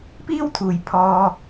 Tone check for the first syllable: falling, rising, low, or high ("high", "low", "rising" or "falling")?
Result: high